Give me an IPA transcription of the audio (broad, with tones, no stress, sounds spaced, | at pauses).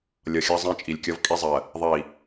lʲ ʌ˨ xʲ ɑ˦ zˤ ɛ̃˦˨ t͡ʃʼ i˨ lʲ kʲ ʌ˦ v kʼ i˦ zˤ ɜ˨ | ðˤ i˨